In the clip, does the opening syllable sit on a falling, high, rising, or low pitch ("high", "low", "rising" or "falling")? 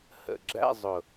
low